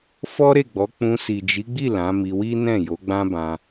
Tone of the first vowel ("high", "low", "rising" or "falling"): high